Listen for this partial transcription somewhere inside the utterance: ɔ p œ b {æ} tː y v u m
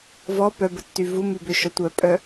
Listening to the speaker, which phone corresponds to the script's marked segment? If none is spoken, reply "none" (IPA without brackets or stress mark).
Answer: ə